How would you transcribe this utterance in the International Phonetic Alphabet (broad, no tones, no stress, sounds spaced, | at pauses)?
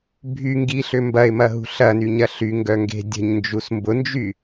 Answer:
bʱ y ŋ ɡ i ɬ ʏ m b ɐ ɪ̯ m ɐ ɦ ṳ ɬ ɐ n y ɲ ɐ ɬ y ŋ ɡ œ ŋ ɡ e̤ dʲ ə̤ ɲ n d͡ʒ u s m b ʊ n d͡ʒ y